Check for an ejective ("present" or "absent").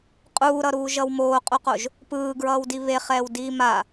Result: present